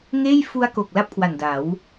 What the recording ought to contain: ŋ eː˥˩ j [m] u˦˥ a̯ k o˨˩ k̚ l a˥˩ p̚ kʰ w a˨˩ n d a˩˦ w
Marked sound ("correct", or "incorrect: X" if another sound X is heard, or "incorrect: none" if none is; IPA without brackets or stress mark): incorrect: f